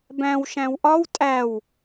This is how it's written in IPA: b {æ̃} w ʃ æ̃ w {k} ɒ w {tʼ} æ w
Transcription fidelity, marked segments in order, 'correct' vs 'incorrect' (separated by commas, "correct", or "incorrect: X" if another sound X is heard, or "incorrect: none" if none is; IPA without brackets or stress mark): correct, incorrect: ʔ, correct